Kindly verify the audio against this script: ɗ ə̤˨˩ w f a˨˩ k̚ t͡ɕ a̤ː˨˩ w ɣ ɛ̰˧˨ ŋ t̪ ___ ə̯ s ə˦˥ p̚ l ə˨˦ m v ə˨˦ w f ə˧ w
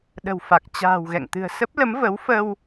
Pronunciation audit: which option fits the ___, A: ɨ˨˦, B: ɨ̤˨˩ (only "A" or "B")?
B